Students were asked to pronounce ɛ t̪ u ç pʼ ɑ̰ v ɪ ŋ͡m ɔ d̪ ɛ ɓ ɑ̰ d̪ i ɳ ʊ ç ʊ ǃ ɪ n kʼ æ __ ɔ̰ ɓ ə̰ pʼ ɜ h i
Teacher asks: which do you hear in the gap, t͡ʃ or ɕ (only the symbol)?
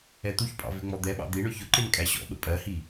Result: ɕ